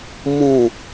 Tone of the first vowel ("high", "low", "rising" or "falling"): falling